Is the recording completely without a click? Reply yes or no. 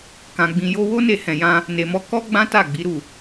yes